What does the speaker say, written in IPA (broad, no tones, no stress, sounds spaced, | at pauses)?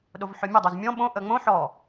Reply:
ɗ o v ħ ɵ mʲ ə dˤ o z mʲ ɔ̃ ɓ õ ʔ ə ŋ͡m õ ħ ɔ